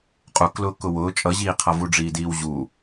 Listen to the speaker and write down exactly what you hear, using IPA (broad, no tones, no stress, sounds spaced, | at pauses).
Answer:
qʼ u k l ʊː k ʊ w ʊː t͡ʃʼ ʌ ʑ iː qʰ ʌ v u ɖ͡ʐ iː d iː w ʑ u